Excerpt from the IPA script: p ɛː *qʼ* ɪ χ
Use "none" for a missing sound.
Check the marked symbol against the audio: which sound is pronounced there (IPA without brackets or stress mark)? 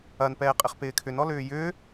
qʼ